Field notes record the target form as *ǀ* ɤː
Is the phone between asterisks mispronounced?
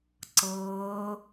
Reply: no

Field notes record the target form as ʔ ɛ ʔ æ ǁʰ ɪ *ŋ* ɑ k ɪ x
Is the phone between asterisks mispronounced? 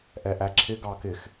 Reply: yes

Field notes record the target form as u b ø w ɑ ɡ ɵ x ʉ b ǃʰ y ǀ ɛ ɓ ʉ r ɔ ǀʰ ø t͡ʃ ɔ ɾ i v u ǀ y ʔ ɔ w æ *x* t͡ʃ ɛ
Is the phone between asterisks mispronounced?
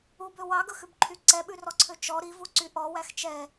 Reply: no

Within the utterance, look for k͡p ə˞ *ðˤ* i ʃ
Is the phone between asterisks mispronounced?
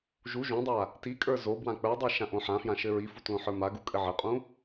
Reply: yes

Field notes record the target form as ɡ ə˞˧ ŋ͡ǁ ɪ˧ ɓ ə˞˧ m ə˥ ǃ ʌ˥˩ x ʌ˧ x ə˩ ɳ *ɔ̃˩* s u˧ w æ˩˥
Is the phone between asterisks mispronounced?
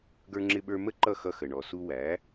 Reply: yes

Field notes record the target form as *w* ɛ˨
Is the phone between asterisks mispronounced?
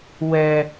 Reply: no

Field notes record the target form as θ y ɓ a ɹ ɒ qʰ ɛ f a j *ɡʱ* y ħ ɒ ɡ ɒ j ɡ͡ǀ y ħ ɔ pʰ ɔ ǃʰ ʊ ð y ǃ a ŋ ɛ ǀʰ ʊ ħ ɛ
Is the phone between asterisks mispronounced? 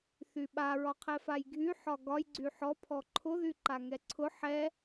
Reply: no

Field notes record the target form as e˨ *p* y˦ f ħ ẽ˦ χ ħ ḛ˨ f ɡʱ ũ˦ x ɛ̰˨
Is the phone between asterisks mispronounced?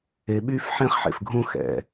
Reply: yes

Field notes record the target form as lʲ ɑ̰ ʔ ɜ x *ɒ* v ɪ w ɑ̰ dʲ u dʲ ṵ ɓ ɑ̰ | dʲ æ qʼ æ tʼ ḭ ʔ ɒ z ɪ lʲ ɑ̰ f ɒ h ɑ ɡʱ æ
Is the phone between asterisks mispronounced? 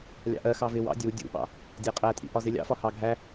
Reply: yes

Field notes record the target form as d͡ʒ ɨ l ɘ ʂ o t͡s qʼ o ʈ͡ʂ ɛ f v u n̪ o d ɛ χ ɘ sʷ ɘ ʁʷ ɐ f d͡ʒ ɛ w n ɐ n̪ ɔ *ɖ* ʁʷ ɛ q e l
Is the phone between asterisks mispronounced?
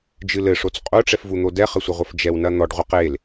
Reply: no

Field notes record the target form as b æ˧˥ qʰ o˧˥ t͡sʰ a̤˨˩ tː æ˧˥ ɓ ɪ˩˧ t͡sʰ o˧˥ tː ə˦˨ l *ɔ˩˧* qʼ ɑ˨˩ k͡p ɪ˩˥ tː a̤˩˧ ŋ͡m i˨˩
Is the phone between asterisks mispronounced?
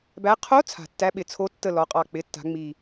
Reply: no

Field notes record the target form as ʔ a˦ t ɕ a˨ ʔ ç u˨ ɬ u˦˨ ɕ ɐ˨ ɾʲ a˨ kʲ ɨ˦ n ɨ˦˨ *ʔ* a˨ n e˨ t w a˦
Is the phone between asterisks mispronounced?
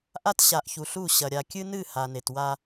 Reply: yes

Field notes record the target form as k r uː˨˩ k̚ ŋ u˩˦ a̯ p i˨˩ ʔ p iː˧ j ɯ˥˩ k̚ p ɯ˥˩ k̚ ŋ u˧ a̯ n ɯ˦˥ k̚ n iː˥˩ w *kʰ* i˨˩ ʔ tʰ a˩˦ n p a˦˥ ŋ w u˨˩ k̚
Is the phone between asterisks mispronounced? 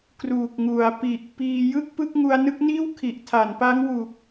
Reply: no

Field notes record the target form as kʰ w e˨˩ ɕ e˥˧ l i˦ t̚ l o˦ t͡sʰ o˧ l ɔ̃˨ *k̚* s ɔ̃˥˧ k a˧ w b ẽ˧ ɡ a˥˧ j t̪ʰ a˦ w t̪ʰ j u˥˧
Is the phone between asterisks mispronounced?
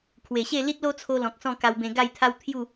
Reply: no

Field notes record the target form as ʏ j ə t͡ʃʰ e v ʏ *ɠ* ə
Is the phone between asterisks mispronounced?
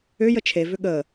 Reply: no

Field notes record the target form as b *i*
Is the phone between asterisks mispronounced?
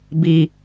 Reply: no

